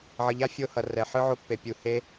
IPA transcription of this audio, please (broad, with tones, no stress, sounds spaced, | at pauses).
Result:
ʕ ʌ˨ ʎ a˦ fʲ o˦ h ʌ˨ r ɛ˨ ħ ɯ˦ ʕ o˧ pː e˨ pʲ u˨ h e˦